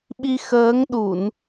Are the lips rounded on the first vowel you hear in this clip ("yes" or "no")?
no